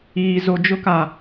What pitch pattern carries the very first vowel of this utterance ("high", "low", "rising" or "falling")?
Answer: high